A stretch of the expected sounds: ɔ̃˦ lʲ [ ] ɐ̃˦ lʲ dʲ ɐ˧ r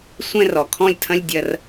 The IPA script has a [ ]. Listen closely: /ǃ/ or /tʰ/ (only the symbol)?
tʰ